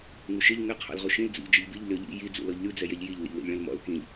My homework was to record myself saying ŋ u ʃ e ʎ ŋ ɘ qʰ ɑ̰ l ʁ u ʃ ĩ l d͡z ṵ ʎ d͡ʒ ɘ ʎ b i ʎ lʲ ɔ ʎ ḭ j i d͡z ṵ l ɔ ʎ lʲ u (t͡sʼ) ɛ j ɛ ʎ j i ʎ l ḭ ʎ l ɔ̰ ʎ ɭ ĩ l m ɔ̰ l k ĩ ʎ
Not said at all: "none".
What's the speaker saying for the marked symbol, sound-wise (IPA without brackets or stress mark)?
d͡z